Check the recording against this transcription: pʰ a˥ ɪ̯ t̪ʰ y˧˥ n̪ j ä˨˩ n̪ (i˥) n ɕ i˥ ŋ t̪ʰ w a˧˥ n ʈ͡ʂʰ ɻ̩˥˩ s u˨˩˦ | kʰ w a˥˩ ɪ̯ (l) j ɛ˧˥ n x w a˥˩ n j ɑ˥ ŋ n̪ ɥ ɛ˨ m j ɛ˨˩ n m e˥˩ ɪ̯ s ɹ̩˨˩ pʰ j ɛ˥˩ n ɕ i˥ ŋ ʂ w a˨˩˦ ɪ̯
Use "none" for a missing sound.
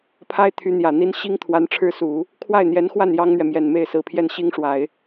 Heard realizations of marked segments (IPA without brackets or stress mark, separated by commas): i˥, n̪